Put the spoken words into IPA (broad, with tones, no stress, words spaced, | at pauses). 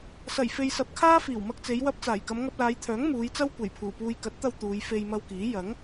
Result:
sɐ˨˩jfe˨j sɐ˨˥p̚kʰaː˥ fiː˨˩wmɐ˧k̚t͡se˨˧j wɐ˧p̚t͡saː˨˩jkɐ˨˧m ŋɐ˧p̚laː˨˧jt̪ʰœː˨˥ŋ muː˨˧jt͡sɐ˥w kʷe˨˩jpʰuː˨˩puː˧j kɐ˨˥t̚t̪ɐ˧w t̪uː˨˧j fe˧jmɐ˧wkiː˨˥ jɐ˨˥ŋ